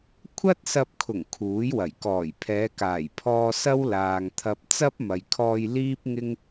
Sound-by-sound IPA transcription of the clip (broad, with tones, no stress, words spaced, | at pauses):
kʷʰɐ˥t̚sɐ˧p̚kʰʊ˨˩ŋ kʰuː˨˥jwɐ˨˩j kɔː˨˩jpʰɛː˨˧kaː˨˩jpʰɔː˧ sɐ˥wlaː˨ŋt̪ʰɐ˧p̚ t͡sɐ˥p̚mɐ˨jkʰɔː˧j liː˥p̚ŋɪ˥ŋ